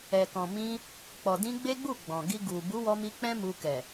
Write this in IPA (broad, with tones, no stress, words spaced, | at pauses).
ɛ˨kɔ̃˨ mĩ˧ | k͡pɔ˨dĩ˧ ɡ͡be˦ɡ͡bu˦˨ ɡ͡bɔ̃˨ɡi˧ ɡu˨ bu˨˦wɔ˧mi˧ k͡pɛ̃˦mu˧kɛ˨